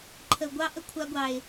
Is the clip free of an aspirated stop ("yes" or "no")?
no